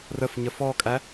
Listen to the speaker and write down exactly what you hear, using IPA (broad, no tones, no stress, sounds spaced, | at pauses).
r ə f ɲ ə f ɔ kʼ æ